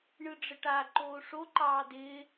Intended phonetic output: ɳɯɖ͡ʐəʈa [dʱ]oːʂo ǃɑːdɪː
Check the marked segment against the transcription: incorrect: ǃ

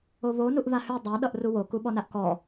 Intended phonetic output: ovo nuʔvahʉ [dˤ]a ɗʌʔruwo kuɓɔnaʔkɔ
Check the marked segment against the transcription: correct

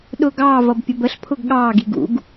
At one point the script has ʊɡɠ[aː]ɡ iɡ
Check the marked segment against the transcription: incorrect: ɑː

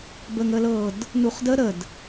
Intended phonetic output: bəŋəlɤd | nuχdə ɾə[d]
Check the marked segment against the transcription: correct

